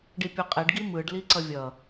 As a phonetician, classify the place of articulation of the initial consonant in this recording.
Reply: retroflex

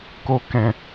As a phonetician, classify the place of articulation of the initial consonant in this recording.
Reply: velar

